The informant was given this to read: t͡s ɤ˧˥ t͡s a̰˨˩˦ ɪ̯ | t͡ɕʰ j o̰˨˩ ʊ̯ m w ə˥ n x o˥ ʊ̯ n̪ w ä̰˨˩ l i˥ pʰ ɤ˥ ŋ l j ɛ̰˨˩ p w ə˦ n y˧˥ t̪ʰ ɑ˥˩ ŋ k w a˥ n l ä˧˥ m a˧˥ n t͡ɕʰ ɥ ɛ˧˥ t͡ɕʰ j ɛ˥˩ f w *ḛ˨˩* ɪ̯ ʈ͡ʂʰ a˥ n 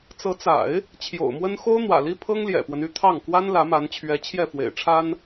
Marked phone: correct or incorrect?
correct